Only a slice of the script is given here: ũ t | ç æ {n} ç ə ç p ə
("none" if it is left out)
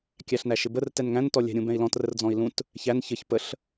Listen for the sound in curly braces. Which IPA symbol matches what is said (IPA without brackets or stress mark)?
n